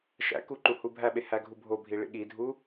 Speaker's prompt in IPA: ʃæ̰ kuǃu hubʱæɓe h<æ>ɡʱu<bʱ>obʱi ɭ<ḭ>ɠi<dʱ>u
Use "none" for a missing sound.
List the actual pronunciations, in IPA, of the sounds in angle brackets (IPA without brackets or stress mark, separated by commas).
æ, bʱ, ḭ, dʱ